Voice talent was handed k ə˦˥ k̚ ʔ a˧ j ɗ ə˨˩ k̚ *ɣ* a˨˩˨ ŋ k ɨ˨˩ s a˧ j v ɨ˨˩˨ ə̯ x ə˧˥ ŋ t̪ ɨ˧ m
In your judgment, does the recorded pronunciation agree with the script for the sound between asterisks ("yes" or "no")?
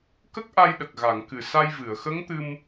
yes